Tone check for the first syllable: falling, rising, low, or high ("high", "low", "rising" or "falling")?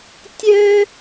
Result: high